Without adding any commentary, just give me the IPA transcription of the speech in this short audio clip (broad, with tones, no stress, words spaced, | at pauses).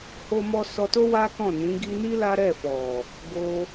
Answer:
ho˦mɔ˦ sɔ˧to˦ wa˦kɔ̃˦˨nĩ˨˦ ɡi˧ ni˦ la˦ ɾɛ˦˨fɔ˨ | ɡo˧